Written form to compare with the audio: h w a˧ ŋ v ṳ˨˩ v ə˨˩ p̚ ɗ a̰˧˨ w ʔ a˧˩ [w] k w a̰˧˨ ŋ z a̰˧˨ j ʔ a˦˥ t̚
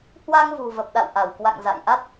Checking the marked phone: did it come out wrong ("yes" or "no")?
no